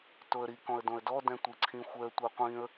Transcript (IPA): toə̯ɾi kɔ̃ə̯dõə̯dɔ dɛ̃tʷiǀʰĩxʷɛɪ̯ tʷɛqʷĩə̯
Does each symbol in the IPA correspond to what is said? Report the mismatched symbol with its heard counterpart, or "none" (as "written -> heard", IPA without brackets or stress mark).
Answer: ɪ̯ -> ə̯